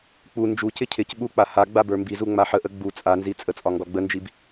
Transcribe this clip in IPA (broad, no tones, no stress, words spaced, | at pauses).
k͡pu nd͡ʒucɪ cʰɪc ɓuk͡pa ha ɡ͡babə˞mbizu ŋ͡maħəʔə ɡ͡bu t͡sʼanzi t͡sʼət͡sʼɒ ŋɡɒɡ͡bənd͡ʒib